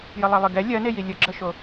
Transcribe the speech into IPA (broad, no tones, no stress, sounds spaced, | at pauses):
j ə lˠ ɜ lˠ ɨ ɡ ɛ lʲ ɜ n e j i lʲ ə ɡ͡ǁ ə ʃ o